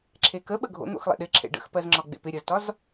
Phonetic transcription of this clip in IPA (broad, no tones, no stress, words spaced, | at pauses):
ǁʰekəɓə ɡʱo̰n̪o̰xlˠḛ ɗɪǁʰḛ ɖə̰xpɜzŋ͡ǁɒ ɡ͡bḛpɪ ɾʲəztɒz